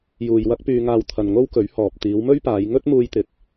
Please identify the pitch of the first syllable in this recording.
low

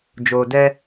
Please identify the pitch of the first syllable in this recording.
low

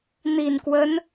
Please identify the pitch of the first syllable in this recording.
low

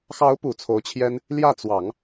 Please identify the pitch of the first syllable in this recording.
rising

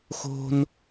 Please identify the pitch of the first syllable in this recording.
high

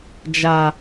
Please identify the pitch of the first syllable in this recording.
low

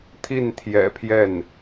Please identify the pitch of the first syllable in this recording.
falling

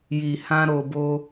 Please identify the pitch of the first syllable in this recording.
low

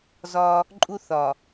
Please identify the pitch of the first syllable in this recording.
high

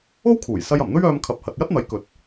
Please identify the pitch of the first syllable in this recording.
high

